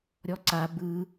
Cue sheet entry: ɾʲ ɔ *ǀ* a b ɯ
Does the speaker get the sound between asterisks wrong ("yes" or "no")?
no